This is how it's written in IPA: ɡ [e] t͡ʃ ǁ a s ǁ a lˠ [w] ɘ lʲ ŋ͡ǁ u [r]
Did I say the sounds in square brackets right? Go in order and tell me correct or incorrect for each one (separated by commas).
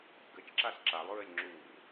incorrect, incorrect, correct